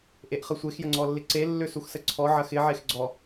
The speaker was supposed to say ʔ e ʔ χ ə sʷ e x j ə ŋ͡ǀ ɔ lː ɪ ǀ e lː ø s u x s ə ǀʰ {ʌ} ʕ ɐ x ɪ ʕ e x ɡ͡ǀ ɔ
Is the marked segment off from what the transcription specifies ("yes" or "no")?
yes